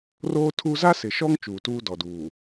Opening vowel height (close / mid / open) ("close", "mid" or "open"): mid